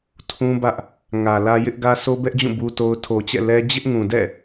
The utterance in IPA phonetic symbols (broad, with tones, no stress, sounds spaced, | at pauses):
tʰ ũ˦ b ä˦ ʔ | ŋ ä˨ l ä˦ j ɪ˦ ʔ ɡ ä˦ s o˦ b ɛ˦ ʔ d͡ʑ ũ˦˨ b u˦ t o˦ ʊ̯ tʰ o˨ t͡ɕ ɛ̰˦˨ l ɛ˦ d͡ʑ ɪ˦ ʔ ŋ ũ˨ d ɛ̰˦˨